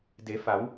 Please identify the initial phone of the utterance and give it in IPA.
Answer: d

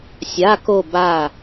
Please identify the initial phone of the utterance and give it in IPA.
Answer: sʲ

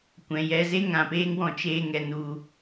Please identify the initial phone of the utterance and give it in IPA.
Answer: kʷ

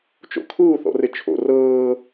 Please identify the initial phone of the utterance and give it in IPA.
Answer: t͡ʃ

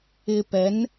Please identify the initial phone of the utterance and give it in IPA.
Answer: ɪ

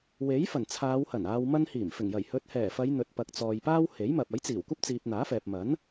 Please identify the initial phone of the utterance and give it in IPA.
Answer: w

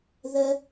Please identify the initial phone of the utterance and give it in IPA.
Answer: ð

